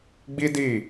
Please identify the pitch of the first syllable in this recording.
high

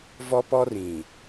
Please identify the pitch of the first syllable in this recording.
high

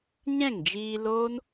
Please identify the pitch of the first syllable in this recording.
falling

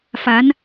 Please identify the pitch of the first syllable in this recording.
rising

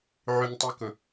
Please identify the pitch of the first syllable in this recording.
low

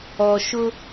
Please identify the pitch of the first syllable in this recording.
low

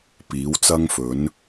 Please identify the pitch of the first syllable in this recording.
rising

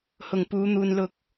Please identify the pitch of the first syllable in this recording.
low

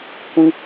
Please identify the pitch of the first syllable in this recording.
high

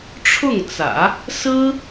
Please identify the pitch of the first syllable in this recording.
falling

